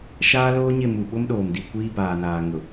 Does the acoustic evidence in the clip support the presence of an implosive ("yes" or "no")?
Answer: yes